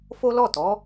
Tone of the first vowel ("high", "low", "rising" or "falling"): high